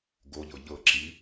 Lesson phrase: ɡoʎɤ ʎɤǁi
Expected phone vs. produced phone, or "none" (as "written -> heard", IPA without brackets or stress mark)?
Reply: none